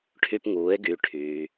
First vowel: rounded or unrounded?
rounded